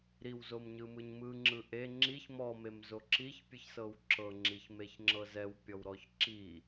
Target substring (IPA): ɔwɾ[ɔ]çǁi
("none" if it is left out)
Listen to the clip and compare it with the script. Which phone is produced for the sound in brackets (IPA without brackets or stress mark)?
ɔ